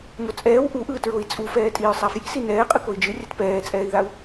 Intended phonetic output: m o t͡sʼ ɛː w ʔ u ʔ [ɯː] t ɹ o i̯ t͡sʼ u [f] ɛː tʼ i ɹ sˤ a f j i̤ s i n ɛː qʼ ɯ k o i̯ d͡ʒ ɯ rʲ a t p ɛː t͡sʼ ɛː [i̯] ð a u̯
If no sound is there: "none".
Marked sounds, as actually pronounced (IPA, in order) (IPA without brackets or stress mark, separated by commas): ɯː, f, i̯